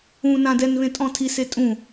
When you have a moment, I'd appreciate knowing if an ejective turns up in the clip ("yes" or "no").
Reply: yes